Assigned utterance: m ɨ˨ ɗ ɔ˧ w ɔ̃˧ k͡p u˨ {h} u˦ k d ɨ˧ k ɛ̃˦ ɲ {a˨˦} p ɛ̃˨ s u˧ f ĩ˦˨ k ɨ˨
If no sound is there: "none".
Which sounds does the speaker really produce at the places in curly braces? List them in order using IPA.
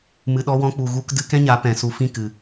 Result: ɣ, a˨˦

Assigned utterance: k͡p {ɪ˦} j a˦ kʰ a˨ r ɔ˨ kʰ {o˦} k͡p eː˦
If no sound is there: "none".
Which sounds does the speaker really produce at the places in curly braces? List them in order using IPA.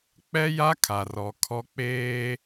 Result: ɛ˦, ɔ˦

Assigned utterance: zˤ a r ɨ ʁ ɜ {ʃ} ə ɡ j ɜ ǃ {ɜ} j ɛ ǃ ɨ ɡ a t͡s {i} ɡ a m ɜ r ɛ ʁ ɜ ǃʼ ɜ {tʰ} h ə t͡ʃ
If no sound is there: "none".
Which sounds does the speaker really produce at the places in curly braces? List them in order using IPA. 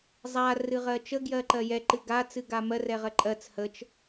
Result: t͡ʃ, ɜ, ɨ, t͡s

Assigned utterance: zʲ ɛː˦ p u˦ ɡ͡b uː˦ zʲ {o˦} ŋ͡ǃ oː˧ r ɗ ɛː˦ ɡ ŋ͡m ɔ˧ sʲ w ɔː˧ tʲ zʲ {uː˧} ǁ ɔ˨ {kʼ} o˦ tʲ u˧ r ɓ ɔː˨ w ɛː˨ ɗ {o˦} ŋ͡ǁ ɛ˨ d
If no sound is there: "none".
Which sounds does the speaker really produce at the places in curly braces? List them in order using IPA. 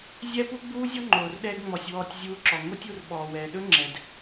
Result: ɔ˦, uː˧, ŋ, ɵ˦

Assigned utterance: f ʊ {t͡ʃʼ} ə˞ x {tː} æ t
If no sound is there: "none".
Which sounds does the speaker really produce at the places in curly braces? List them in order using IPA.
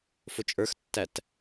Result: t͡ʃʼ, tː

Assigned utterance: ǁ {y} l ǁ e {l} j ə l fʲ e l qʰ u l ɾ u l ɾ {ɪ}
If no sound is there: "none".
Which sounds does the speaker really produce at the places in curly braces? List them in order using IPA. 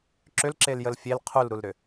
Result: ʏ, l, ʏ

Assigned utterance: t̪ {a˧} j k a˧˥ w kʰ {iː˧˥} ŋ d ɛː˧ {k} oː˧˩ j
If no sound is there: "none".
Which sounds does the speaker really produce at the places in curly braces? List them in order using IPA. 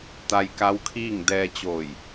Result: a˧, iː˥˨, t͡ɕ

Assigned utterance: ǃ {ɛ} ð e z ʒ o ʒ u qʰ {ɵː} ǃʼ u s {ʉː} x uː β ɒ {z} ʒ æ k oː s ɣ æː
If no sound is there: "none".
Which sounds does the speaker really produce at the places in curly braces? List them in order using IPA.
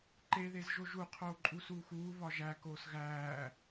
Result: e, oː, uː, none

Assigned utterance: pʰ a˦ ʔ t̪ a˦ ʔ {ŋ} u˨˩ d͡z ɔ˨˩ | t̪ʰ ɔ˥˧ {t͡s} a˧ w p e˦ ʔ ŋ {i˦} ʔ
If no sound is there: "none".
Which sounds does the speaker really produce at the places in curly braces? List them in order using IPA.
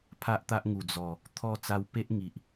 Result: ŋ, t͡s, i˨

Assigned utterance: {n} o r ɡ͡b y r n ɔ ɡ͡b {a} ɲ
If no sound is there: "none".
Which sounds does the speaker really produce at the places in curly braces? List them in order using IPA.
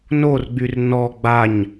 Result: n, a

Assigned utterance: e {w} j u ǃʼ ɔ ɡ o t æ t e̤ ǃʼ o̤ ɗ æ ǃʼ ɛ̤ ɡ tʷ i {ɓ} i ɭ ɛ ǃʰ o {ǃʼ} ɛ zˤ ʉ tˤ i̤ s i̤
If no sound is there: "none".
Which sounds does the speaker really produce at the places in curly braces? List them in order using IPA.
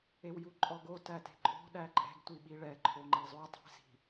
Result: w, ɓ, ŋ͡ǃ

